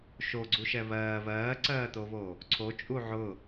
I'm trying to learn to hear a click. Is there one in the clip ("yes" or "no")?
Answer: yes